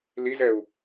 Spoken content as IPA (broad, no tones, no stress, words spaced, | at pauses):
lizɛu̯